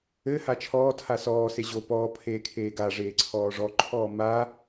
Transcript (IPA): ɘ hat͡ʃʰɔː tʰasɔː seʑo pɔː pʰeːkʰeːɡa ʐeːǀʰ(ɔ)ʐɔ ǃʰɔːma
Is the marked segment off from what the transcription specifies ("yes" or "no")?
yes